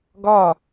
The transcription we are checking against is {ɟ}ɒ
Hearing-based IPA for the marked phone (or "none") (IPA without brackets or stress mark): ɡ